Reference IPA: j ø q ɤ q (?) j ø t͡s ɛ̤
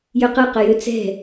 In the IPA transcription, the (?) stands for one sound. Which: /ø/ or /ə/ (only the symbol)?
ə